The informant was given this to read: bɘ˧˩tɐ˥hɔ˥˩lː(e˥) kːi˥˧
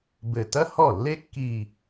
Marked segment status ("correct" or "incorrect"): correct